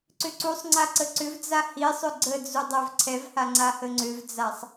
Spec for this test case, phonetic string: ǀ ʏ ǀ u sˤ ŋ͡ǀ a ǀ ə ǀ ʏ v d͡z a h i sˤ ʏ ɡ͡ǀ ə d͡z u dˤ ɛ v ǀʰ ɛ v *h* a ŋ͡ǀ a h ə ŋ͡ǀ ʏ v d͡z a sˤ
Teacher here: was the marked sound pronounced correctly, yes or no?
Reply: yes